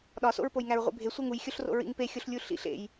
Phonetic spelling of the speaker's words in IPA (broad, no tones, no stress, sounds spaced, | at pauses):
ɗ ɒ s o̰ ɹ p o j ŋ æ ɹ ʁʷ ḭ bʱ e sʷ e ŋ u j xʲ o ɬ r o̰ ɹ ḭ ŋ p e xʲ o ɬ lʲ u ɬ ḭ ɬ ḛ j